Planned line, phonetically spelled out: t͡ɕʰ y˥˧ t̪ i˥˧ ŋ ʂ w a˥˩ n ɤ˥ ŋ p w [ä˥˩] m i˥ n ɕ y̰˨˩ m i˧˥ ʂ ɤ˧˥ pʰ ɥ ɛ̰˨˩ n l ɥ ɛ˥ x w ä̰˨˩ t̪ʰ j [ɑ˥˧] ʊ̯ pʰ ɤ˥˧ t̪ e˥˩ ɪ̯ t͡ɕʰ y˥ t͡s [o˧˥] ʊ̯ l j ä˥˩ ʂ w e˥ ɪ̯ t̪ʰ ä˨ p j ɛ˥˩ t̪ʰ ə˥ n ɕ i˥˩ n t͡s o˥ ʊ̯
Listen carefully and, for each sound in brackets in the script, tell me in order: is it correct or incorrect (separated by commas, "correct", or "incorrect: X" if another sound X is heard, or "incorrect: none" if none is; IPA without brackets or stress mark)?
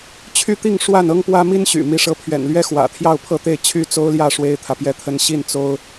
incorrect: ä˥, correct, incorrect: o˥